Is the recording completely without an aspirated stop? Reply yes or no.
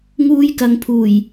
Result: no